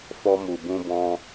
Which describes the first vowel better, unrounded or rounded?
rounded